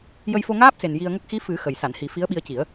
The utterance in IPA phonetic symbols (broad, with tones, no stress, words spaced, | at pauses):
jə˧jfo˧ŋaː˦˥p̚se˨˩n ji˧ə̯ŋə˦˥k̚ xi˧˥ fɨ˨˩˦ xə˨˩j sa˨˩˨nhi˨˩˦ fi˧˥ə̯ɓi˧ə̯ci˨˩˦ə̯